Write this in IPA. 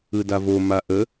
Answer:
ɯdavo maʔə

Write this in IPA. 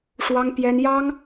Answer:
ʂwɑ˥ŋpjɛ˥n jɑ˥ŋ

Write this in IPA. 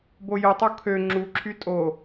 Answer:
bojɯtˤo kʰø ŋ͡ǁuǁʰy tʼo

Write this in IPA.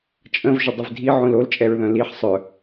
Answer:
t͡ʃʼə̃v ʒədˤəvdʱi ʕõlol t͡ʃʼɛɹðœ̃liħ sˤœ

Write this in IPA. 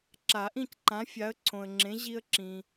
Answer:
ǁa˨˩˦ʔĩ˥˨cǃã˨˥ fʲa˨˥ə̯ǀʰõ˨ə̯ŋ͡ǁẽ˨˥ ʑi˦ə̯ǁĩ˨

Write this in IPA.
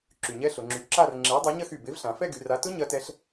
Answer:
ǁy˨˩ɲɛ˦˥ɬʊ˩˧ŋ͡ǁy˨˥ ǁa˥˧r ŋ͡ǁe˨˥i̯dˤa˨˥ ɲɐ˥˧xy˨˩ be˨˥vɬã˩˧ fɛ˥˧ɡy˩˧ra˨˥ tʊ˦˥ ɲɐ˦˥tɛ˦˥ɬ

